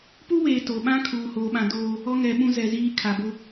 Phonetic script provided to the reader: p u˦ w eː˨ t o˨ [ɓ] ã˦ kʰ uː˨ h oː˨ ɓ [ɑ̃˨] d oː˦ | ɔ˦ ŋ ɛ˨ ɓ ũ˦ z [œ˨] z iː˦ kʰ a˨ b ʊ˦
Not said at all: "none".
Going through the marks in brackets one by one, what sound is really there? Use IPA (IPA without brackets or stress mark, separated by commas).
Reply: ɓ, ã˨, ɛ˨